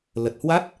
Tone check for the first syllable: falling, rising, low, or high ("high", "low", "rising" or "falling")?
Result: low